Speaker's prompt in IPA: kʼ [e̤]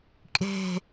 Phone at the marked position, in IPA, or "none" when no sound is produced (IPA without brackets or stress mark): e̤